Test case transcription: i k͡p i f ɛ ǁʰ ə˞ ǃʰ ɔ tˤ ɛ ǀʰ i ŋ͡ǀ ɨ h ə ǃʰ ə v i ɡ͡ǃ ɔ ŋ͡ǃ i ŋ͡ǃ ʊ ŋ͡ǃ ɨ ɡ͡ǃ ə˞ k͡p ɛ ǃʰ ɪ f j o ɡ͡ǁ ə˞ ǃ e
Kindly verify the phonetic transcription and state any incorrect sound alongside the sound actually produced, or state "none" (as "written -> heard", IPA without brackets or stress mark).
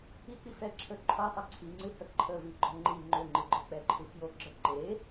ɪ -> ɨ